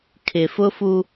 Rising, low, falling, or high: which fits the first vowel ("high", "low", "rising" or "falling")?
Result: low